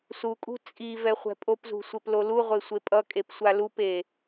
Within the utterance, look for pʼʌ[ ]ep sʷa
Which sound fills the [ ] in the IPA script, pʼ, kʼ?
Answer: kʼ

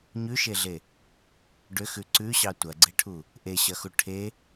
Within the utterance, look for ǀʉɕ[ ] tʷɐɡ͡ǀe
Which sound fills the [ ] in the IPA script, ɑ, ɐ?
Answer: ɑ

